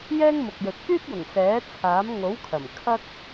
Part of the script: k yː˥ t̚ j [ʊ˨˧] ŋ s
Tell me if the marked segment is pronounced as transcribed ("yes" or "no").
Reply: no